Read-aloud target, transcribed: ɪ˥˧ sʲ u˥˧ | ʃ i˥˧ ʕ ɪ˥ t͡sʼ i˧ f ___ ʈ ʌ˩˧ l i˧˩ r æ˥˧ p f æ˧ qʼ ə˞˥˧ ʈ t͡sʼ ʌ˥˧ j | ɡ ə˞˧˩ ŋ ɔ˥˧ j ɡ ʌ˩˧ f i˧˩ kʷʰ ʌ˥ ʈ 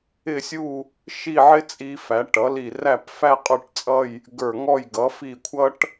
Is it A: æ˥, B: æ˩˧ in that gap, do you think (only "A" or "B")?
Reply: B